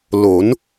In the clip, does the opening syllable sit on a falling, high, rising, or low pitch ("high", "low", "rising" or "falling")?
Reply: rising